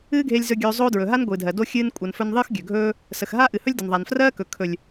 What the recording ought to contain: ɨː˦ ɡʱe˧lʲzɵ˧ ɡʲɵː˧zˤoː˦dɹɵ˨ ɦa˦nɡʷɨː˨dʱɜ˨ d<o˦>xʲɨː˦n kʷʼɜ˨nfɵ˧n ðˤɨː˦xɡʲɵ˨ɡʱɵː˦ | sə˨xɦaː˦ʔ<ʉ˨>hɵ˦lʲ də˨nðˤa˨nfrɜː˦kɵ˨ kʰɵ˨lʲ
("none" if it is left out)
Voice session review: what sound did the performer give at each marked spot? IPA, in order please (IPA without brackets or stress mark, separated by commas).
o˦, ɨ˨